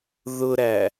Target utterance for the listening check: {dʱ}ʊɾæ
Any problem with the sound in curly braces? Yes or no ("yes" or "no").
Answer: yes